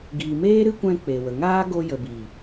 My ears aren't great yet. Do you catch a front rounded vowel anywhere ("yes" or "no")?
no